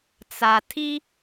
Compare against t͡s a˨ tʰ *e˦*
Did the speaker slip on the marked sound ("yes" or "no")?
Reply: yes